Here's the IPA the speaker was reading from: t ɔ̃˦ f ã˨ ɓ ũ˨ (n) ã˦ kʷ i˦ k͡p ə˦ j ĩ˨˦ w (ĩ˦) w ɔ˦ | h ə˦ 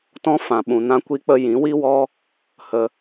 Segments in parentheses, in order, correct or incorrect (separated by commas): correct, incorrect